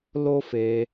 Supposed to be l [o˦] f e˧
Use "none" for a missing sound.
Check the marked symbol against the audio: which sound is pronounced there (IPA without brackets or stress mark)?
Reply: o˦